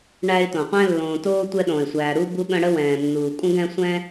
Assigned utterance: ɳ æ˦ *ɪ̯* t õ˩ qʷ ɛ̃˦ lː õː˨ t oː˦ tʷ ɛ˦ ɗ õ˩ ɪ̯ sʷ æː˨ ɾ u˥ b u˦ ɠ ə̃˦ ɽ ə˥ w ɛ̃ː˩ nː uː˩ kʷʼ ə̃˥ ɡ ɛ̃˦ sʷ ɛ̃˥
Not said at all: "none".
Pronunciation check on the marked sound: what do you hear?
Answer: ɪ̯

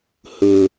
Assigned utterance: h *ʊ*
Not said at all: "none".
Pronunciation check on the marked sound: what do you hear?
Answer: ʊ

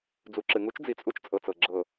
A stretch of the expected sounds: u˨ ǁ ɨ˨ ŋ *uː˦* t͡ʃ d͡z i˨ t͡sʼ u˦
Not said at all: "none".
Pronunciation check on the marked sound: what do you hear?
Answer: u˦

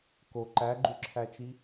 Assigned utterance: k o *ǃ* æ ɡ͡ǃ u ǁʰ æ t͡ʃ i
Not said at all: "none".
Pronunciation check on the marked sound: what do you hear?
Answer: ǃ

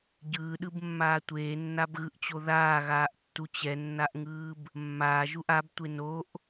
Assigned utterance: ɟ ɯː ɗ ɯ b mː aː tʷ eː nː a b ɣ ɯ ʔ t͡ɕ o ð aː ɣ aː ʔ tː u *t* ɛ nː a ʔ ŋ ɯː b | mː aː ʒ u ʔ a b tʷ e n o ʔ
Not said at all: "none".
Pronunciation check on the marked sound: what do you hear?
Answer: t͡ɕ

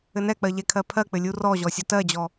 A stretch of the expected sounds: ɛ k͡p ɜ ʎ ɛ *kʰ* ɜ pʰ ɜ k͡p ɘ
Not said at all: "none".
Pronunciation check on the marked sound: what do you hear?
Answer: kʰ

